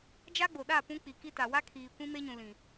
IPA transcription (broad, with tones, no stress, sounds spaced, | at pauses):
d͡ʒ a˦ ɡ͡b o˨ ɗ a˦˨ p ũ˦ k͡p i˨ k i˦ t a˨ w a˦ kʰ iː˨ kʷ ĩ˦ m e˦ ɲ ũ˨ l ĩ˨